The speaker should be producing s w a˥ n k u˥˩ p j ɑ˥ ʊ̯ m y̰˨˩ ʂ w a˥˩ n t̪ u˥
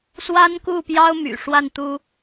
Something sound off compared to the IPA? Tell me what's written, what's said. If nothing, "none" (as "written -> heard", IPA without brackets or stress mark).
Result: none